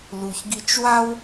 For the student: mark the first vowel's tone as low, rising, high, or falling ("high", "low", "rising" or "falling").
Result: low